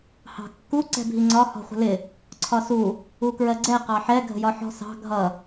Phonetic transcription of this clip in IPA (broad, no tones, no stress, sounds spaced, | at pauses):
h ɑ̤ kː u ǀ ɛ̤ bʱ i ŋ͡ǀ ɒ h ɔ̤ χʷ ə̤ l ɪ | ǀʰ ɒ s u | u k ɹ ɜ ɡ͡ǀ ɛ q ɑ ħ ɛ ɡʱ ə̤ j ɒ ħ ɔ̤ s ɑ̤ ɡʱ ʌ